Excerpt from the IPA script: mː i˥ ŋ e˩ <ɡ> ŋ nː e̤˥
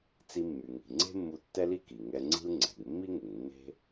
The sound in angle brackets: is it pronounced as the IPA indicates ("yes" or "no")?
no